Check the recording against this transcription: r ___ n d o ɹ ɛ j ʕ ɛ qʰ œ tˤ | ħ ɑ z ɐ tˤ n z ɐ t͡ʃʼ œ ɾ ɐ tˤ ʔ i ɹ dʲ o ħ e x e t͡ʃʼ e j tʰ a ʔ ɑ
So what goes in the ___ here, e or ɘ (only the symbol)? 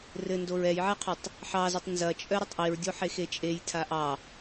ɘ